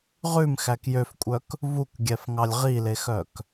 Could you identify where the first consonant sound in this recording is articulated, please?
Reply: uvular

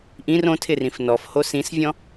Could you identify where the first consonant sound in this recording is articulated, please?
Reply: glottal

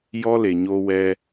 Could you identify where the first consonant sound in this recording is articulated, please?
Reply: palatal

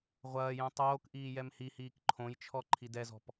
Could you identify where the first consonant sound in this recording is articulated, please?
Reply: uvular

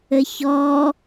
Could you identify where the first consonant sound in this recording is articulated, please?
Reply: palatal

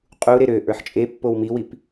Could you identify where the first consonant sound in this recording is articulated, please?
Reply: uvular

